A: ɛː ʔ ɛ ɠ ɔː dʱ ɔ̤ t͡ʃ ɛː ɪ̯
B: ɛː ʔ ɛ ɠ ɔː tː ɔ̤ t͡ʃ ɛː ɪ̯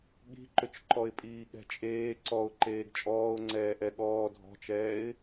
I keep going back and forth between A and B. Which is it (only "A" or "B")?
A